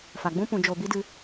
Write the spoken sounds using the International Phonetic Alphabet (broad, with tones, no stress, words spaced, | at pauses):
fa˨ɡ͡bũ˦ pũ˨d͡ʒo˨bi˦dɨ˧